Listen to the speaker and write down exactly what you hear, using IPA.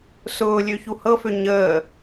sʊːlʲø çuhɤfø ɲəː

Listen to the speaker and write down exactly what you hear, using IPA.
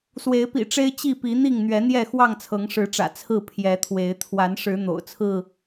swe˨˦ɪ̯pḭ˨˩ʈ͡ʂe˦ɪ̯ t͡ɕi˥˨pi˨˦ n̪i˥˨ŋ n̪ɥɛ˨˦n̪jɛ˥˨ xwɑ˥˨ŋt͡sʰɤ˨˦ŋʂɻ̩˨˦ʈ͡ʂä̰˨˩ t͡sʰɹ̩˥˨ pʰjɛ˨˦t̪ʰwe˨˦ɪ̯ t̪ʰwa˨˦nʂɻ̩˨˦ n̪o̰˨˩ʊ̯t͡sʰɹ̩˥˨

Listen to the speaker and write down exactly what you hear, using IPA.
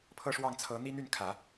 pʰɤ˥ʂwɑ˥˩ŋt͡sʰɤ˧˥n̪i˥ n̪y˥˩nkʰä˨˩˦

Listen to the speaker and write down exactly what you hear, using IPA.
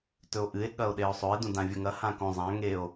tɵo̯ʔɨe̯ ɠɐo̯ɗeo̯sˤɵe̯ dũdãvʲɵŋɐ hãkõ zˤã ŋeo̯

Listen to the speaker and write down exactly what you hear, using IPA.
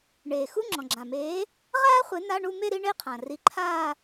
ɳeː˩ xu˧˥˧ŋ͡ǁɔ̃˩ɡ͡ǁã˩meː˨˥ | ʁaː˥χʷe˨˥ na˧˥˧ɳu˥˧ me˥˧ɾi˥˧ɳe˥˧qʰã˩ ri˨˥ǃʰaː˥˧

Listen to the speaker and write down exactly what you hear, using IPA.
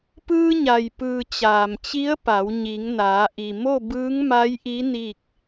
pɯː˧ɲa˩jpɯː˩ t͡ɕaː˩mt͡ɕi˧˥ə̯pa˩˧w ɲi˩˧ŋnaː˩˧ ʔi˩ mo˥˨bɯː˧˥ŋma˧˥jʔi˧˥ ni˥˨k̚

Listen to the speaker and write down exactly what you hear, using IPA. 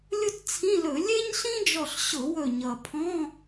lʲʊ˥tt͡sʰĩ˧˥˧lɵ˧˩˧ lʲe˥ɲɬĩ˥d͡ʒɔ˧˩ɬ ɕʊ˧˩˧wɵ˧˩ ɲʌ˩pʰɔ̃˧˥˧

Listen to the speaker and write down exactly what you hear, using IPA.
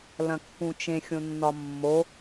lɐ̃kːũt͡ʃẽ xʲõnːɒmːo

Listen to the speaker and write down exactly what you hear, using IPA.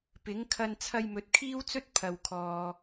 pɪ˨˥ŋkʰɐ˧n t͡sʰɐ˧jmɵ˨t̚ kʰiː˥wt͡sɵ˥t̚ pʰɐ˨wkʰɔː˨

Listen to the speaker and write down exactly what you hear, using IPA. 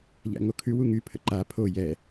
ʎæ̰ŋokʰʉ wuŋy pʰə̰ǃa pʰo jɛ

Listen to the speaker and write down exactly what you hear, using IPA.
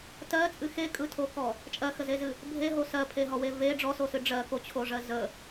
tɜt͡sʼɨ xekʼɯtʰokɔ | t͡ʃʼɜxəzezɨ | bʱeɦo sɜpʰeɦɔwe ve ɖ͡ʐɔsosɨ ɖ͡ʐɜkot͡ɕʰoʐɜ zə

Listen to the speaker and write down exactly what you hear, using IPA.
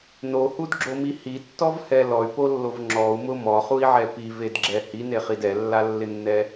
nohudɡ͡ǁomi hitːɔvhɛ lɔy̯polːov ŋ͡ǁɔu̯mʊ mɔχui̯ʕɛ pivedɡ͡ǁɛ hineχid ɛlːalːɪnːɛ

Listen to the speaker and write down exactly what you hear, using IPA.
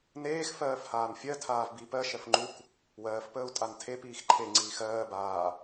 neːxfɜːf haːnfʲɜ tʰaːvbi pɜ ʃɜfŋ͡ǃuk | wɜːfpəːu̯ tʼantʰepiːx ǃʰe ŋ͡ǀiːxɜː baː

